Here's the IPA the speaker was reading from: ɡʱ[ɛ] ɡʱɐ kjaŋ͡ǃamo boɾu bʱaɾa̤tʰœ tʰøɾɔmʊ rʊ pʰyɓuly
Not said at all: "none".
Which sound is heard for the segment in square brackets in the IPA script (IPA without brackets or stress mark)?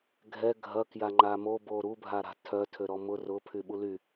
ɛ